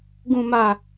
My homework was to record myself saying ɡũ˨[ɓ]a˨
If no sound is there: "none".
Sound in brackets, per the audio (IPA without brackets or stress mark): m